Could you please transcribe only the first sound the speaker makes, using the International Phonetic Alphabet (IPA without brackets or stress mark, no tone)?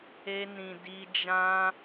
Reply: e